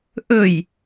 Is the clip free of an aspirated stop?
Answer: yes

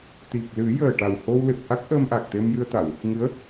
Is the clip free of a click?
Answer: yes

